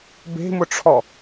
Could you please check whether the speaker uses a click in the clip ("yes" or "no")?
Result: no